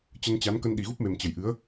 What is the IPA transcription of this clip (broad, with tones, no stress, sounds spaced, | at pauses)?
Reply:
t͡ɕ ə˧ n t͡ɕ a˨˦ n k ə˧ n ɗ i˨˩ ɣ u˦˥ p̚ m e˨˩ m t͡ɕ ə˨˩ j ʔ ɨ˨˦ ə̯